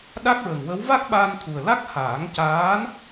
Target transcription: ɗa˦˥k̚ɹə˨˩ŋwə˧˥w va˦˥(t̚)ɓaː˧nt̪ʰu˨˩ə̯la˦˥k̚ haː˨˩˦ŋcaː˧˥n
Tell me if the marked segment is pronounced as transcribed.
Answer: no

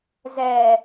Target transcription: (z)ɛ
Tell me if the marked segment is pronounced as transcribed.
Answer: yes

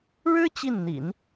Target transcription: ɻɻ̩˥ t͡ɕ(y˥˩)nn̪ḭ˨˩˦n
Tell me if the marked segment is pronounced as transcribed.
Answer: no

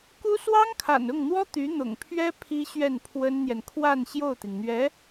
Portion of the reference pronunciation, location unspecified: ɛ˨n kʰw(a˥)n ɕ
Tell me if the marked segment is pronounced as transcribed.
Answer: no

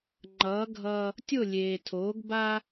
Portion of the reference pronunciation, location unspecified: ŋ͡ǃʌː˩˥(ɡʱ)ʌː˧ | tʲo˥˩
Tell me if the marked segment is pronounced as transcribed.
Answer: yes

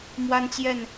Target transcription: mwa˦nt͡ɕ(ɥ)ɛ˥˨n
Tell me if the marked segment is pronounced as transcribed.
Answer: no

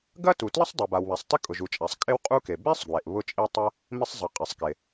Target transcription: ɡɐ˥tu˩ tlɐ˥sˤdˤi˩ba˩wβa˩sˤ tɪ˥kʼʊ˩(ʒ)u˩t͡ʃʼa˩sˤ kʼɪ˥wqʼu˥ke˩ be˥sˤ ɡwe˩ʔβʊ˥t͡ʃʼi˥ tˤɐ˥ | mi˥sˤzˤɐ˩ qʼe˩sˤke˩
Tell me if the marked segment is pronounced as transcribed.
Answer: yes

